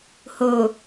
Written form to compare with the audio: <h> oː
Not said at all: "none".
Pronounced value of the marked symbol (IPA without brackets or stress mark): h